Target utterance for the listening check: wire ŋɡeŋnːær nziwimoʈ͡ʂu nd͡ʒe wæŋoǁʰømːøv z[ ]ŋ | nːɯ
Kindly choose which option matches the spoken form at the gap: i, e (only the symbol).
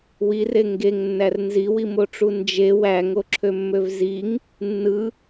i